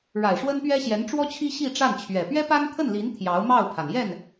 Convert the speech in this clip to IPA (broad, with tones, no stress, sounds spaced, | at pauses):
ɻ a˨˩ ɪ̯ ʂ w ə˥ n p ɥ ɛ˥ ɕ j ɛ˧˥ n ʈ͡ʂ w ɔ˥ t͡ɕʰ i˥ ɕ i˥˧ ʈ͡ʂ a˥˩ n t͡ɕʰ ɥ ɛ˨˩ p ɥ ɛ˥ p a˥ n t̪ʰ ə˥˩ n l i˧˥ n t̪ʰ j ɑ˧˥ ʊ̯ m ɑ˥˩ ʊ̯ pʰ a˩ n j ɛ˥˩ n